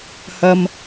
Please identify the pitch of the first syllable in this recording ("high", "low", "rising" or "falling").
high